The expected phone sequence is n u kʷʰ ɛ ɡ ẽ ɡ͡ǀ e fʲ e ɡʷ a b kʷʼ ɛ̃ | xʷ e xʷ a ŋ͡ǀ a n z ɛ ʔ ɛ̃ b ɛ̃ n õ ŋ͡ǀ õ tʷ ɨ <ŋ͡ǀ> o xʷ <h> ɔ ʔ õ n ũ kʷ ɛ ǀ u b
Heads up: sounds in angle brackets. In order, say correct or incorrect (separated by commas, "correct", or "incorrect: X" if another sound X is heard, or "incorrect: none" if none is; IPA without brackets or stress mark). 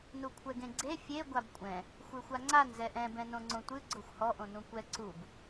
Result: incorrect: ɡ͡ǀ, correct